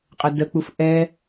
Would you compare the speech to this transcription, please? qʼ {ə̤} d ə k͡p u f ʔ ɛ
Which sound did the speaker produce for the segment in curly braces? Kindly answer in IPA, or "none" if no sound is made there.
ə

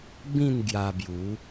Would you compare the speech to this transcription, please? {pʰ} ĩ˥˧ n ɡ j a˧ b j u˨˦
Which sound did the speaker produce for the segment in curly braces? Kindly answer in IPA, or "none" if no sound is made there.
b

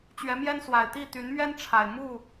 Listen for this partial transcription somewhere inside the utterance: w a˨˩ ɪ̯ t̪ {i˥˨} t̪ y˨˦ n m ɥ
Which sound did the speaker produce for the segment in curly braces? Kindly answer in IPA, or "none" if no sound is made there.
i˥˨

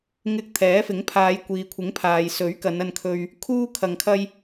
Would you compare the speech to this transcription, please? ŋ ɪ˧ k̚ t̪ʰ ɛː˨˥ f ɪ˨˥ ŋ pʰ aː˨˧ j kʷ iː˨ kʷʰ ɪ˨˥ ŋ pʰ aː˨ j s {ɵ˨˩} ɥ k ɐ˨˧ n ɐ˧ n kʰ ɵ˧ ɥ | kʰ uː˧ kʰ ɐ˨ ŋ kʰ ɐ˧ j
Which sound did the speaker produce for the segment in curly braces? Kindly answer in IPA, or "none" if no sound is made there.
ɵ˨˥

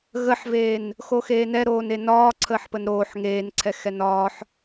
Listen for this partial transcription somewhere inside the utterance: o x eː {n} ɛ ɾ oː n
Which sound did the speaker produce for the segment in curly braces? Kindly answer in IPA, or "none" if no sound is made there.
n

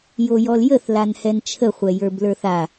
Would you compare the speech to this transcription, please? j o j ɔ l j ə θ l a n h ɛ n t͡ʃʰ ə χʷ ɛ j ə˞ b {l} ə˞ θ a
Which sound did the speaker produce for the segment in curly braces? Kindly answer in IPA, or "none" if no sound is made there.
l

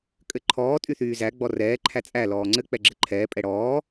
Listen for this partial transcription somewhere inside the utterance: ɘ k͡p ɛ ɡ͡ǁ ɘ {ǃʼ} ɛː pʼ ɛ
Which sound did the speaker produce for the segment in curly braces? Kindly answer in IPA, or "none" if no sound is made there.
ǃʰ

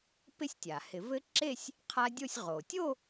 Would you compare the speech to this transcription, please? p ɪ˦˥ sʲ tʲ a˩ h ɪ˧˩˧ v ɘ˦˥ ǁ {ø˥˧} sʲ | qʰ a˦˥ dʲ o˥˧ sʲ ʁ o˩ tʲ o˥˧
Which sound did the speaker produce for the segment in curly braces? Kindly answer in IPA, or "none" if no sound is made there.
e˥˧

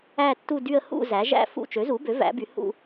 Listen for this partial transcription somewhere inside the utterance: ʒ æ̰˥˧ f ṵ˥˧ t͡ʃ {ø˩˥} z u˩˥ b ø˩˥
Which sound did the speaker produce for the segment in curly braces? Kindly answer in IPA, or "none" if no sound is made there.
ø˩˥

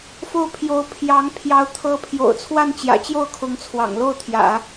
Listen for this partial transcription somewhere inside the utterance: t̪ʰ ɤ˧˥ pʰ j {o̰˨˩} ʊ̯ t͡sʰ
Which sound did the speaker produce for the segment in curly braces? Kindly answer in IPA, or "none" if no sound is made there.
o̰˨˩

